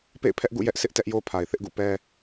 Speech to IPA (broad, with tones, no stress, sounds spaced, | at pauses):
p ḛ˦˨ ɪ̯ pʰ ɛ˦ ʔ ɡ ṵ˦˨ j ɛ˦ ʔ sʰ ɪ˦ ʔ t ɛ˦ ʔ j o˦ pʰ a˨ ɪ̯ θ ɪ˦ ʔ ɡ ṵ˦˨ p ɛ˦